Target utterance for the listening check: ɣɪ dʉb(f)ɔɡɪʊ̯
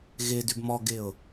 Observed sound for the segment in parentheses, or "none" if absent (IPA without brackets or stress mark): m